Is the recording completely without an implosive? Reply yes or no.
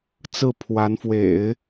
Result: yes